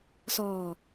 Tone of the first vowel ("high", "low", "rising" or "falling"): low